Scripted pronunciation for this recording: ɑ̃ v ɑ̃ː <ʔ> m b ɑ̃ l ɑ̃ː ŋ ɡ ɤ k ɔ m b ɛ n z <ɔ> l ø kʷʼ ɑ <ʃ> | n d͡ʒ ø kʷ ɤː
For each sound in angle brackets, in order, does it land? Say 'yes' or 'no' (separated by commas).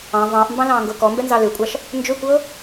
yes, no, yes